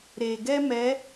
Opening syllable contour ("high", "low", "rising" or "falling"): low